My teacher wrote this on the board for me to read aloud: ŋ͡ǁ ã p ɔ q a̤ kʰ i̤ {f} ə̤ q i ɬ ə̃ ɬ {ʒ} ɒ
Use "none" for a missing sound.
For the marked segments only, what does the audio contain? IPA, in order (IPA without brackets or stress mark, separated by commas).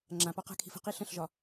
f, ʒ